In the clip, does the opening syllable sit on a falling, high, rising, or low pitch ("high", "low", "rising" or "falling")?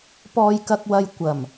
low